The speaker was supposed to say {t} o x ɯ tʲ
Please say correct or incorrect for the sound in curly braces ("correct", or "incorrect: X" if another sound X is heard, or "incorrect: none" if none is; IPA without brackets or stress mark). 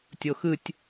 incorrect: tʲ